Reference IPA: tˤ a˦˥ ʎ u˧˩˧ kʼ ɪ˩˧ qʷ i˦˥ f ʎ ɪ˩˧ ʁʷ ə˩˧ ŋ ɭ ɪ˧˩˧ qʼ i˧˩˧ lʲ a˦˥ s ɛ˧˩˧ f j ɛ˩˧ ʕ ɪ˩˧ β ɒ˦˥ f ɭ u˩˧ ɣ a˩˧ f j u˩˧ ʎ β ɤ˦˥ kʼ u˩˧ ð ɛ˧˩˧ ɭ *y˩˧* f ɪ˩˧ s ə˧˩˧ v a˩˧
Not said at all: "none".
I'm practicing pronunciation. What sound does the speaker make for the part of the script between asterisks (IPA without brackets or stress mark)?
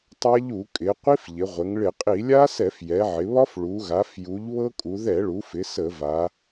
u˩˧